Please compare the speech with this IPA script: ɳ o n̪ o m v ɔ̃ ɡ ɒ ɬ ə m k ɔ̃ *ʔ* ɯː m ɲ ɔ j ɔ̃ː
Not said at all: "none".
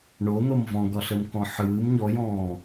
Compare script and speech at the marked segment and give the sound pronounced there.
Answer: ħ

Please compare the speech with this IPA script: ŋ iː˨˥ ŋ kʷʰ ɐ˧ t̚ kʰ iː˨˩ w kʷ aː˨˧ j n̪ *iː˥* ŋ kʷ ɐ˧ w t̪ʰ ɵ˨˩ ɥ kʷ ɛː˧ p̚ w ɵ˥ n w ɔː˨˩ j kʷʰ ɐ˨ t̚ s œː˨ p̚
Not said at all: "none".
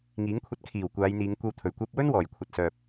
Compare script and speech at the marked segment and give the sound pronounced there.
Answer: iː˨˧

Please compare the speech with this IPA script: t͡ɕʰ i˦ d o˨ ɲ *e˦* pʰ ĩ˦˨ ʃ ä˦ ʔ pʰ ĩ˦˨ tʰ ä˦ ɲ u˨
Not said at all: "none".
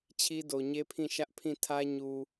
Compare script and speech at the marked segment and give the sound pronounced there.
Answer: e˦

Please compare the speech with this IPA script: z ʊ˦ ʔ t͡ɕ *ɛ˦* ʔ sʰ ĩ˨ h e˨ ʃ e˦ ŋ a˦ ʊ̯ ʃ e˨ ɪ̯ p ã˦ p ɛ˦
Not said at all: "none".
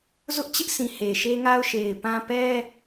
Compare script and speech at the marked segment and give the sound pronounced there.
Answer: ɪ˦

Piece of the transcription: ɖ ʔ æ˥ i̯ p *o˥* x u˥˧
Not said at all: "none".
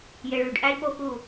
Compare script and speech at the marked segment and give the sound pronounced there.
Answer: o˥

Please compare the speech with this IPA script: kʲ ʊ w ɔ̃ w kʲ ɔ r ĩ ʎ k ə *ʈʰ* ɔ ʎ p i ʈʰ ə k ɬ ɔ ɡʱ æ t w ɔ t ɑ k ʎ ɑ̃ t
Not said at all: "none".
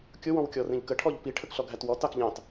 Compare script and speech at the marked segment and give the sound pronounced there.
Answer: ʈʰ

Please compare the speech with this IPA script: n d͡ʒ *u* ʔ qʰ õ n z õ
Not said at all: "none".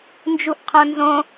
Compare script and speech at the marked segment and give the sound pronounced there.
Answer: u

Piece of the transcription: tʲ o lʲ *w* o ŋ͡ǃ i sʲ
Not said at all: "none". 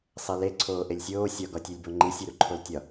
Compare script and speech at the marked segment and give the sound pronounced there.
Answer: b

